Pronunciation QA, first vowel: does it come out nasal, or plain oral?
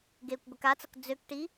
oral